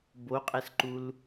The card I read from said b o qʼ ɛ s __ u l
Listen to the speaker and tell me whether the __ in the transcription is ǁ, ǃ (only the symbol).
ǃ